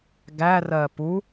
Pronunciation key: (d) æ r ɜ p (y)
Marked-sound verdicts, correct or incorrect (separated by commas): incorrect, incorrect